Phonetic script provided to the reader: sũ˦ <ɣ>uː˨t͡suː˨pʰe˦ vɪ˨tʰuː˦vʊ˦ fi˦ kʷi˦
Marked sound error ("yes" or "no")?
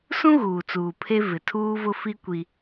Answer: no